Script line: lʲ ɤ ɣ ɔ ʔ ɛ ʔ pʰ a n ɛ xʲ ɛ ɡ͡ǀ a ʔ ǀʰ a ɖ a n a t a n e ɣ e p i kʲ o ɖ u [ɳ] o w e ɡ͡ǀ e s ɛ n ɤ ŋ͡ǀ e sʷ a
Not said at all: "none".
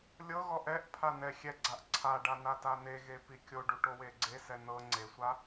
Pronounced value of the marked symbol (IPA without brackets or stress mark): ʈ